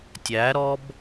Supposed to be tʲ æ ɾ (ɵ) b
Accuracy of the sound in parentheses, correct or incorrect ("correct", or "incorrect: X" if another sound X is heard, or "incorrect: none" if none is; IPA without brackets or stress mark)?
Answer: incorrect: ɔ